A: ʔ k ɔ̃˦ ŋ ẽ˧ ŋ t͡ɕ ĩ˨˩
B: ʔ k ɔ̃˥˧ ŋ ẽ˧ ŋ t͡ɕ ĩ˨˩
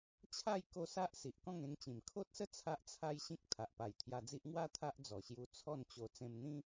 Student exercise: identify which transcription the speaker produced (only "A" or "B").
B